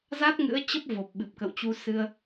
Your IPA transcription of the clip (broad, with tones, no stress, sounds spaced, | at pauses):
z a˦˥ t̚ ŋ ɨ̰˧˥ ə̯ t͡ɕ ə˦˥ p̚ v o˨˩ p̚ ɓ ɨ˨˩ p̚ k ə̰˧˨ w t͡ɕ u˧ s ɨ˧ ə̯